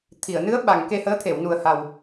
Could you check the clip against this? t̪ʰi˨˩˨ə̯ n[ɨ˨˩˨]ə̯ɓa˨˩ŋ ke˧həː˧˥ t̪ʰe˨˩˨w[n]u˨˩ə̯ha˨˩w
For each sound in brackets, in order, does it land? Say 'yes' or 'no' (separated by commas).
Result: no, yes